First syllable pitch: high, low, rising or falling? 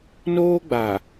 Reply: high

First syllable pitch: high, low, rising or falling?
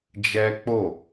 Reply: high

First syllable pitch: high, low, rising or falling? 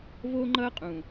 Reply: high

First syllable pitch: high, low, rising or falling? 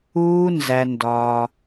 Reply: high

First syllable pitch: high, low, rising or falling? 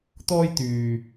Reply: high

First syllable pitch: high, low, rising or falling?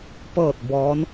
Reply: falling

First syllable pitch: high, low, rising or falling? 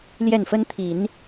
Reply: falling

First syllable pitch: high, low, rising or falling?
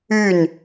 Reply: falling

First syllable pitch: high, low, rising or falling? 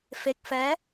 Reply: low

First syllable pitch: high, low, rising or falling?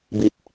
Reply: low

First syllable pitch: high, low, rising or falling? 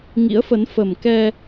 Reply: rising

